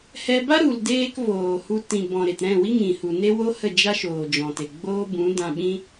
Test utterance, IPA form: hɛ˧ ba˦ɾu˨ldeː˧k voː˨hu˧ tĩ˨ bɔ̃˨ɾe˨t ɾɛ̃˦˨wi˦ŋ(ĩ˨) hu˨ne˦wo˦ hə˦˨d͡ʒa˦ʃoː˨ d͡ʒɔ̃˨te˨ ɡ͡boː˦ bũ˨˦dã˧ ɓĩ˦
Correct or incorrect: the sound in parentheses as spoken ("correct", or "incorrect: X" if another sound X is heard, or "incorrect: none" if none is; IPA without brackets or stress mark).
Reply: correct